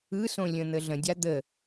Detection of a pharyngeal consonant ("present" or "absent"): absent